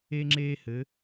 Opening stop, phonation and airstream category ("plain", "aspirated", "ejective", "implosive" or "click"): click